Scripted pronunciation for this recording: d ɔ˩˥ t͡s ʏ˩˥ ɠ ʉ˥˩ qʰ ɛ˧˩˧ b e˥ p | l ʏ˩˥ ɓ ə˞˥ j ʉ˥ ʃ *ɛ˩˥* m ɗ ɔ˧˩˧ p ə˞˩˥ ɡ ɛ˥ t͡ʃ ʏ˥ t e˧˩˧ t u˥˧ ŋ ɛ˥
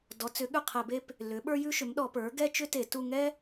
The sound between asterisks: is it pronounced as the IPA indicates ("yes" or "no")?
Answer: no